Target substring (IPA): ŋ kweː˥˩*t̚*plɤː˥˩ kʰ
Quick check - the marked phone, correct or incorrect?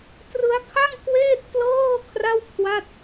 correct